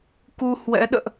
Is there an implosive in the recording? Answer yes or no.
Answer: yes